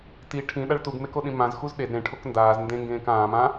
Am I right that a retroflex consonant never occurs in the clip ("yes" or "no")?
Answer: no